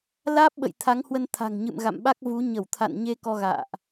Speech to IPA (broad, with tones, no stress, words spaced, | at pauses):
laː˦˥p̚ɓə̰˧˨j t̪ʰa˨˦ŋhwə˧n t̪ʰa̤˨˩ŋɲɨ̰˧˨m ɣa̰˧˨mɓa˦˥k̚ vu˨˦ ɲə˧˩w t̪ʰa̰˧˨nɲe˧ kɔ˧ɣa̰ː˧˨ʔ